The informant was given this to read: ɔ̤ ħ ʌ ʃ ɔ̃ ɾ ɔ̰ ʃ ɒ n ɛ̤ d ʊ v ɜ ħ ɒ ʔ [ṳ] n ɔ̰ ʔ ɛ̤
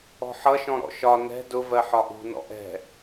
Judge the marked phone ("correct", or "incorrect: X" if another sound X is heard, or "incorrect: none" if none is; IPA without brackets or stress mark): correct